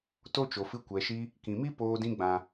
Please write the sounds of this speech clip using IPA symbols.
to˦t͡ʃo˨fɨ˧ kʷɛ˨ʃi˧ | kĩ˨mi˦ poː˧dĩ˧ɡ͡bã˨

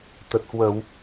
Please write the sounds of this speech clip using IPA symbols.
t̪ə˨˩t̚hwə˧˩˨w

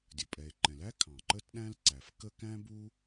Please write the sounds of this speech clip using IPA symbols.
dʲə˩pʼɛ˩e̯ ǃɛ̃˩læ˥ kʰɑ̃˩ǃə˥tɗæ̃˥l ǀæ˩fkə˥ kæ̃˥bu˥

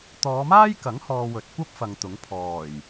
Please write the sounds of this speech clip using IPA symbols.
t̪ɔː˨˧maː˥jkɐ˨˥ŋhɔː˨ wɵ˨t̚kʷɐ˥p̚fɐ˨ŋ t̪ʊ˨˥ŋ pʰɔː˨˩j

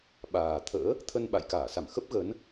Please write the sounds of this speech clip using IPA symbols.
ɓaː˨˩t̪ʰə̰ː˧˥ | t̪ʰə˧nɓa̰˧˨jkaː˧˩ sa˧˩m xə˦˥p̚ ɣə˨˦n

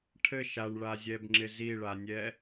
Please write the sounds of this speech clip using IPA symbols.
ʈʰɘʃ aɳɭazʲɛbŋ͡ǁɪ ziɭanʲɛ

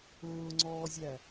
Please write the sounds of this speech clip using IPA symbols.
ʊːŋ͡ǀɔːzʲæ

